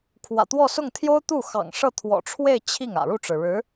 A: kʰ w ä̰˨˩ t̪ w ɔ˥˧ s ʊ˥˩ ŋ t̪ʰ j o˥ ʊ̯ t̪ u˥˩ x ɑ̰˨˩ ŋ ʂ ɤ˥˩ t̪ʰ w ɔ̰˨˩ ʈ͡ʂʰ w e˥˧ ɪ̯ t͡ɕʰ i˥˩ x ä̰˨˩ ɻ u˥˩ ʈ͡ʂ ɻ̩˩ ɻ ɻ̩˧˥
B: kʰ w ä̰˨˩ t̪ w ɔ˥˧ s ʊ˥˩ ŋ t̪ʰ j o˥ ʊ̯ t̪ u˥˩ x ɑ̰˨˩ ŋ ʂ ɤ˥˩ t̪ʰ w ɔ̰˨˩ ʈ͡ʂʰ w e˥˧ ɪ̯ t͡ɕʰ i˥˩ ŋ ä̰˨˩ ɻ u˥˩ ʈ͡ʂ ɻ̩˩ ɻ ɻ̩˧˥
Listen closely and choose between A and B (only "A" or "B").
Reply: B